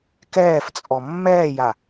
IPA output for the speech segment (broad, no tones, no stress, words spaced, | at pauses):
kɛːft͡sʼɔ mːɛːja